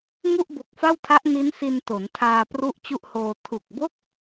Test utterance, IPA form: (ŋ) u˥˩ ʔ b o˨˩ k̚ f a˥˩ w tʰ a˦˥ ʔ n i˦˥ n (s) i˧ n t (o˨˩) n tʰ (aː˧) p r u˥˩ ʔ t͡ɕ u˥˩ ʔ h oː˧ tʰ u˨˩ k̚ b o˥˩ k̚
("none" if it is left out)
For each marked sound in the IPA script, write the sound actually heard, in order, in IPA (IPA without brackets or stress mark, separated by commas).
ŋ, s, o˩˦, aː˧